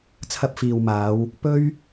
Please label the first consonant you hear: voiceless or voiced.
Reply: voiceless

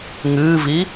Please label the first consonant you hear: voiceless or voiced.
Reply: voiced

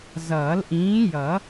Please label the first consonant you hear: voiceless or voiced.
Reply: voiced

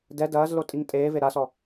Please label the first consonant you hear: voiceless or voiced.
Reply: voiced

